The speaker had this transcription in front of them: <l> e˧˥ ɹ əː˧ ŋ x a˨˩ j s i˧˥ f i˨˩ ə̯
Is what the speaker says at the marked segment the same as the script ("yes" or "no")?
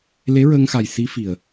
yes